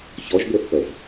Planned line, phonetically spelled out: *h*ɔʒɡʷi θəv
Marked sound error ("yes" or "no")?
yes